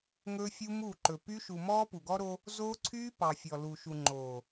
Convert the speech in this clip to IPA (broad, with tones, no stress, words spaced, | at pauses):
ŋɵː˦fʲu˦muː˦˨ǃɵ˨ py˦ ʃu˨mɔː˦ pu˨ɡɔ˦ɾo˦ | zoː˦ǀʰyː˦ pɑ˨fʲɔ˨lu˨ʃu˨ ŋ͡ǃoː˨